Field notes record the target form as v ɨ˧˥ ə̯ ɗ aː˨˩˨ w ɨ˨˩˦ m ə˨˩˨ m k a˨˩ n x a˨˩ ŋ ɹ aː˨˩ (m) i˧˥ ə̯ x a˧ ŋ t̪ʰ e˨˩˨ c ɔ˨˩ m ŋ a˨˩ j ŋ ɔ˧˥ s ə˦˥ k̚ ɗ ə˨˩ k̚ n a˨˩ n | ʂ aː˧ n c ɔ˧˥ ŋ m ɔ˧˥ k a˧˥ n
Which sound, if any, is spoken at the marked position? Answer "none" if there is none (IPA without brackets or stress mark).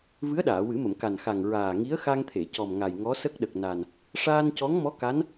ŋ